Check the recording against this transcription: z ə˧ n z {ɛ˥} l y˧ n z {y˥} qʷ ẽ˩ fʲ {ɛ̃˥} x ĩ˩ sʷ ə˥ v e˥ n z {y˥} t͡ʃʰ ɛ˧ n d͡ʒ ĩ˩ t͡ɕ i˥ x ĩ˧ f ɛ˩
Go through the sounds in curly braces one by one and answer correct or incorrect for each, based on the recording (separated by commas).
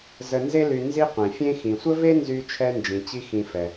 incorrect, incorrect, incorrect, incorrect